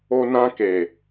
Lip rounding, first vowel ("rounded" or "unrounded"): rounded